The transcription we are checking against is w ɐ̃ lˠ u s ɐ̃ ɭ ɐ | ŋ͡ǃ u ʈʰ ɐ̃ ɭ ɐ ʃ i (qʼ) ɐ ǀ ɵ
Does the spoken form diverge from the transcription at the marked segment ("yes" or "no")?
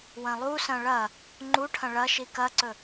yes